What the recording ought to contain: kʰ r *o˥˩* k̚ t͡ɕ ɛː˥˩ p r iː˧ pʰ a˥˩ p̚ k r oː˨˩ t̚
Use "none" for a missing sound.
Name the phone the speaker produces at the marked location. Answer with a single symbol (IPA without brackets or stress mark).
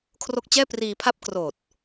o˥˩